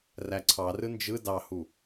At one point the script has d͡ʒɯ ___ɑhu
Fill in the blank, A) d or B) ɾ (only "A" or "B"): A